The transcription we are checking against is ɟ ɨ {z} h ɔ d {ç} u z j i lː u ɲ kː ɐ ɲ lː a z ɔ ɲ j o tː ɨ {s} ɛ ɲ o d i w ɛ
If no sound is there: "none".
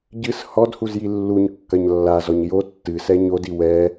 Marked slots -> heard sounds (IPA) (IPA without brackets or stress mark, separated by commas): s, h, s